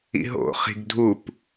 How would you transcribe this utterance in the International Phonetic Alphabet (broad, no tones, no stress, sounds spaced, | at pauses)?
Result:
ḭ ɦ o̰ χ i̤ ɡ dʱ u p